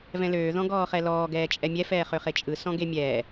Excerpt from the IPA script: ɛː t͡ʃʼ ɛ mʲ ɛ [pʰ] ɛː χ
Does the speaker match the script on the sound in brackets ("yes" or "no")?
no